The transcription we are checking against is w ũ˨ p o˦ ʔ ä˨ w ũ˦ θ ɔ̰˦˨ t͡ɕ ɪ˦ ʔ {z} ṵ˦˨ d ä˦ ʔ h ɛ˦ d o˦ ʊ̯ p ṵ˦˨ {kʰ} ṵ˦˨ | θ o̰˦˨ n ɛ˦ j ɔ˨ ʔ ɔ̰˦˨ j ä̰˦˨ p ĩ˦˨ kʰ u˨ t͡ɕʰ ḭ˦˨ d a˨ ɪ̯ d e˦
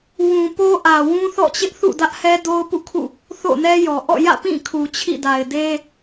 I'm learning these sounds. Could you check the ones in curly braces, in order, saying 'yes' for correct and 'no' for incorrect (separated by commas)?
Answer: no, yes